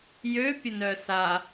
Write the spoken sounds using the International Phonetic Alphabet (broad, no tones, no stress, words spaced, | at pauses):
jøpʲə nœsa